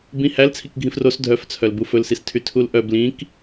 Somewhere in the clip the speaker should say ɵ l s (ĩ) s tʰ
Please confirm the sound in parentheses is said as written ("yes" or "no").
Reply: no